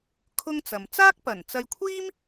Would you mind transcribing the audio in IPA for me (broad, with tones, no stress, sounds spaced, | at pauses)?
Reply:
kʰ ʊ˥ ŋ t͡s ɐ˨ m t͡s aː˥ k̚ p ɐ˨˩ n t͡s ɐ˧ j kʷʰ iː˥ m